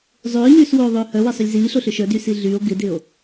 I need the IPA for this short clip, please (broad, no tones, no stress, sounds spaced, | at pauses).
zˤ ʏː ɲ yː s w oː ðˤ ʏː h œ w ɪ sˤ ʏ lʲ z iː ɬ o ɬ ʏ ʃ œ d y s i ɮ y o̯ ɡ ɪ d ɪ o̯